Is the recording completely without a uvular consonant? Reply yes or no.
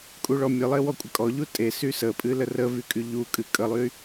yes